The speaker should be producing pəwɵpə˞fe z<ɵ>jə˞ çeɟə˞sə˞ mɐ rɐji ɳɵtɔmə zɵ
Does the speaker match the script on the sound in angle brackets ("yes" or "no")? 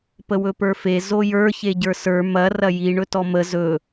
no